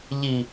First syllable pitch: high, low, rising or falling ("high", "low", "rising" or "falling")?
low